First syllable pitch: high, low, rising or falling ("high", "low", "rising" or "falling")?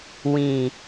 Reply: low